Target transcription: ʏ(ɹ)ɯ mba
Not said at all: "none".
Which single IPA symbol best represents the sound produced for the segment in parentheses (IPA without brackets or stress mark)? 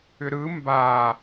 ɾ